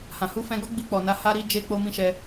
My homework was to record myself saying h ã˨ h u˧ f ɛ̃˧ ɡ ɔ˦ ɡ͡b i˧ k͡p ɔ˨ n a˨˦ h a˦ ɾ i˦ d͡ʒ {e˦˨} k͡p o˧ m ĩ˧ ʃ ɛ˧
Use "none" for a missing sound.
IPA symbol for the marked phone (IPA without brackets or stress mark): e˧